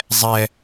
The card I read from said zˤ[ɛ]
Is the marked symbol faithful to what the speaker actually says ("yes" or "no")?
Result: yes